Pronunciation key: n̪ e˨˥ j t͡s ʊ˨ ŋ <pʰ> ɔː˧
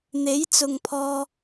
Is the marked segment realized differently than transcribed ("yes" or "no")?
no